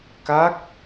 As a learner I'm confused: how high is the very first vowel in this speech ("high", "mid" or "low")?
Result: low